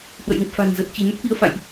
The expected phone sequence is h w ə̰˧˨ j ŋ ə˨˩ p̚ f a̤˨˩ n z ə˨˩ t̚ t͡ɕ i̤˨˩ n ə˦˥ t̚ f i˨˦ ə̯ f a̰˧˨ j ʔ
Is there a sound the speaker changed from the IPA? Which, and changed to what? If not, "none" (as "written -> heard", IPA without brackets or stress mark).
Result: none